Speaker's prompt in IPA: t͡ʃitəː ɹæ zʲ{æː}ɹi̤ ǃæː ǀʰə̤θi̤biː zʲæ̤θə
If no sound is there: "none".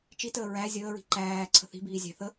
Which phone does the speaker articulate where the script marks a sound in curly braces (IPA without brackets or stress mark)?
əː